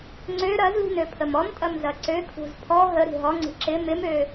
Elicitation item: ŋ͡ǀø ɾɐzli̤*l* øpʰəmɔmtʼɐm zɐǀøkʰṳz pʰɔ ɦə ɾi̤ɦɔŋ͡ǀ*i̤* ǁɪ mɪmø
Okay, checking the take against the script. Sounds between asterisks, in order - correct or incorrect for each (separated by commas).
incorrect, correct